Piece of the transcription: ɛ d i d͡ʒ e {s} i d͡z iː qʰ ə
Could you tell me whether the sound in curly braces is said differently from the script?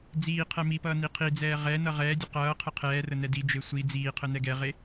yes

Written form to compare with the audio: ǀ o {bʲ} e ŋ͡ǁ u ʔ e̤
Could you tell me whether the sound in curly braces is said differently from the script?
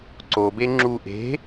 yes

